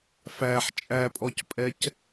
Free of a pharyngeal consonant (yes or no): no